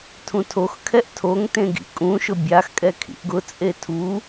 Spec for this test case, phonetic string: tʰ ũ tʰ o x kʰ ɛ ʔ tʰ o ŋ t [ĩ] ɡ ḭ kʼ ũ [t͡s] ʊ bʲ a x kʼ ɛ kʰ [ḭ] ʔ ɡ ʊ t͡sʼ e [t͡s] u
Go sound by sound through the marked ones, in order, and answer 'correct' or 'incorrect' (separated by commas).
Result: incorrect, incorrect, correct, incorrect